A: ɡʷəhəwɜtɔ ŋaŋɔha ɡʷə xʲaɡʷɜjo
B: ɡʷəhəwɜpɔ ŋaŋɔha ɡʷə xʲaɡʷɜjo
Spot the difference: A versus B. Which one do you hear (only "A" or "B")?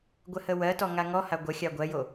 A